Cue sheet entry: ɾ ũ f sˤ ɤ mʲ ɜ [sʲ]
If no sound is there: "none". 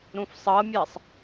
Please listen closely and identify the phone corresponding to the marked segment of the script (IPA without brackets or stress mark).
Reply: sˤ